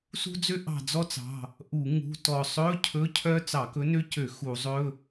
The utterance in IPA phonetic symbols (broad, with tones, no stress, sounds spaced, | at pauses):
s ṳ˥ d͡z ø˥ ʔ ɑ̤˦˨ d͡z ɔ˥ t͡s ɑ̤˩˧˩ | ʔ u˧˩˧ ŋ ṳ˧˥˧ t ɔ˦˨ sˤ ɵ˧˥˧ cʰ ɵ˧˥˧ cʰ œ˥ t͡s ɑ˧˩˧ k ɵ˧˥ n ø˥ c ø˧˩˧ x u˧˩˧ zˤ ɵ˧˥˧